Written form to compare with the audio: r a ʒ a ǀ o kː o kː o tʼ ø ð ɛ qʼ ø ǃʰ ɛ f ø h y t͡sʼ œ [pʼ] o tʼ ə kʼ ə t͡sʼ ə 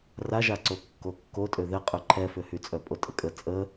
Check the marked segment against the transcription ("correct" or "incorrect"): correct